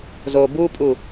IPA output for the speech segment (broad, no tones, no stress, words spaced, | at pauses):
zo bupʼu